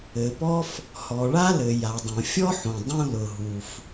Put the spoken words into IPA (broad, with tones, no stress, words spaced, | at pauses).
ɘ˩pɔ˥f | hɔ˩ɭa˥lɘ˩ ja˩dˤõ˩fʲɔ˥ħõ˩ dˤũ˥lʊ˩ɦu˩f